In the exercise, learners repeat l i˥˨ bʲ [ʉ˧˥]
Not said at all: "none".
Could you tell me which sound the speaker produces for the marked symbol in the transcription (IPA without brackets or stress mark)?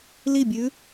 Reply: ʉ˧˥